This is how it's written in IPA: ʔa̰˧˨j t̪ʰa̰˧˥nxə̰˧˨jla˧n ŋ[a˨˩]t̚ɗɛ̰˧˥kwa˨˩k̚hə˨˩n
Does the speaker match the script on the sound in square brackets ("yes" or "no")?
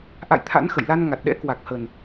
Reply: yes